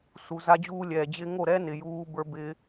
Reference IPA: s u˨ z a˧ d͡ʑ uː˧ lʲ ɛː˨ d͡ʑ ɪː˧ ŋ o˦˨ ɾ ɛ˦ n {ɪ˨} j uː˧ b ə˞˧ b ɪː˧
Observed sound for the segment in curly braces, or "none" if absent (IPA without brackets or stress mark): ɪ˨